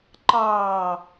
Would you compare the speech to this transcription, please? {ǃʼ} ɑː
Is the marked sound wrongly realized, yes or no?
yes